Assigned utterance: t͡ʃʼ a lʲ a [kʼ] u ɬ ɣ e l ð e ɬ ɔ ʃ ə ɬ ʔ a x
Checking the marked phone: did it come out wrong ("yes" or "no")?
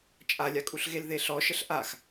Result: no